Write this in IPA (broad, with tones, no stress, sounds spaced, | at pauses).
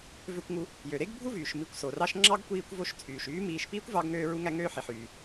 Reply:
v ø˧ kʷ ŋ u˧ | j ø˩ ɾ e˥ ɡ bʱ u˥ v yː˩ ʃ m i˧ kʷ s o˩ r ɑ˧ ʃ ŋ͡ǁ ɑ˥ ɡ kʷ iː˧ kʷ v o˧ ʃ t͡sʼ yː˩ ʃ yː˥ m iː˧ ʃ p iː˥ kʷ v ɑ˧ ɡ ŋ øː˧ ɹ u˧ ŋ æ˧ ŋ øː˧ ħ i˩ ħ yː˩